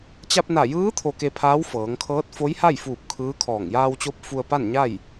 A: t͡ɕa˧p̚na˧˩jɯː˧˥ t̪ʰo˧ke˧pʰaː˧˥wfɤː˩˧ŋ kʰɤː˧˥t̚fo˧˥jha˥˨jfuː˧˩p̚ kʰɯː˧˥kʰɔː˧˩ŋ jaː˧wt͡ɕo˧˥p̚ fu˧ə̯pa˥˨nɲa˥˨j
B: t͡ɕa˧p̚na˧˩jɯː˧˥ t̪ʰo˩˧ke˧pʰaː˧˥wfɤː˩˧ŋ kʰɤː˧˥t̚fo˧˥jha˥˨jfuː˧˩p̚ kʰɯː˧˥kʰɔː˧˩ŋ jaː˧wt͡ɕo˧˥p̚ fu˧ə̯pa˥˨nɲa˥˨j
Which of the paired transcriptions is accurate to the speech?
A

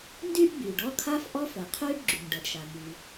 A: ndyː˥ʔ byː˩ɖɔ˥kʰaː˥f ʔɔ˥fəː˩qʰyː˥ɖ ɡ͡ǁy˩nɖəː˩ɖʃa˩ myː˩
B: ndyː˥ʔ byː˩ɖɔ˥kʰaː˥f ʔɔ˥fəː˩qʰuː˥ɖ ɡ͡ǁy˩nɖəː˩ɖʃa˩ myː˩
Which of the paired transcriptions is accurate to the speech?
A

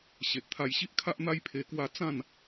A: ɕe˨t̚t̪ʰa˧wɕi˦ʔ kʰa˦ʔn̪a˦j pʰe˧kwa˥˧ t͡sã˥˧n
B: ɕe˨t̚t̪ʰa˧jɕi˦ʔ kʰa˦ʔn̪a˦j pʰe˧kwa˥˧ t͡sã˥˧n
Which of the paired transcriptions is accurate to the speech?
B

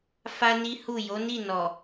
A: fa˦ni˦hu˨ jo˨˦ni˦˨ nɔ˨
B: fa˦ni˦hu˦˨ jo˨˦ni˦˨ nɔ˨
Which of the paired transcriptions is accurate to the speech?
B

